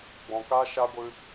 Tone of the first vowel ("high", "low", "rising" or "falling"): low